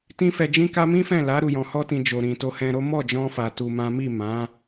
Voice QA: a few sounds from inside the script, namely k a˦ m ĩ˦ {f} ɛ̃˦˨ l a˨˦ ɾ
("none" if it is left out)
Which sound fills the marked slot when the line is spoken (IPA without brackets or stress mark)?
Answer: f